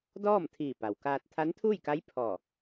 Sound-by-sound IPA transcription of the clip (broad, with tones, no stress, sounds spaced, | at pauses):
d ɔː˥˨ m t̪ʰ iː˧˩ p a˩ w k aː˧ t̚ t̪ʰ a˧˥ n t̪ʰ uː˥˨ j k a˧˥ j pʰ ɔː˧˩